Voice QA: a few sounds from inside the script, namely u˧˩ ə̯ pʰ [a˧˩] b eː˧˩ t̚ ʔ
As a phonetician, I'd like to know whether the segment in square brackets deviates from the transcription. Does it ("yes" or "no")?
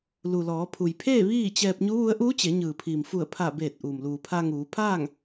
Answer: no